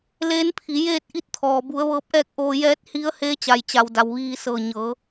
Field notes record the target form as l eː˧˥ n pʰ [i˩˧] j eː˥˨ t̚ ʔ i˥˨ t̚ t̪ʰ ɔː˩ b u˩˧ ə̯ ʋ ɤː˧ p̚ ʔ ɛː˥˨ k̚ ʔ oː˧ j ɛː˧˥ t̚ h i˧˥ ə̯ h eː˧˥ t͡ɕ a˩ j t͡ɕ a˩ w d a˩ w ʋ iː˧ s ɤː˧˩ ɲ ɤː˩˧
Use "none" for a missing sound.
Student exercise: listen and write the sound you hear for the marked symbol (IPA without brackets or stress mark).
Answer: i˩˧